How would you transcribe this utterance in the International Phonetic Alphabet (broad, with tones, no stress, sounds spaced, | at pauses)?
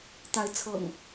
t̪ a˨˦ ɪ̯ t͡sʰ ɤ̰˨˩ ŋ